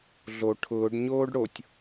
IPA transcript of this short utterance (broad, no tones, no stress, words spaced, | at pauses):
ɮo ʈʰʊːɖɲoːɖ ɽotʲ